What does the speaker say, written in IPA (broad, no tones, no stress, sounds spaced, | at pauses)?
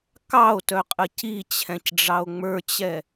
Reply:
k ɑ o̯ t œ qʼ ə c i t͡ɕʰ ɛ̃ c ɖ͡ʐ ɑ o̯ ŋ͡m ə˞ t͡ɕ ɛ